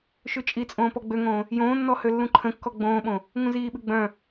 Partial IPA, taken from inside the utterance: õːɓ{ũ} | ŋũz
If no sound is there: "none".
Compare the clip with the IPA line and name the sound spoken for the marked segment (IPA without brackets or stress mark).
õ